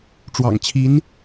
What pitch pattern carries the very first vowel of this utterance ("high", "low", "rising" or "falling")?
low